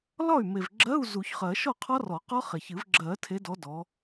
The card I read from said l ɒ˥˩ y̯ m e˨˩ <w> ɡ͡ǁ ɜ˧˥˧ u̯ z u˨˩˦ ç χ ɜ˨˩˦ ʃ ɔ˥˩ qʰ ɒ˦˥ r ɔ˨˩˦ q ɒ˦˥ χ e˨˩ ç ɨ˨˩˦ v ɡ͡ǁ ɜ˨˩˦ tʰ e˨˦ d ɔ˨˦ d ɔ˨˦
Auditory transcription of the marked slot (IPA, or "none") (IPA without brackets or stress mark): v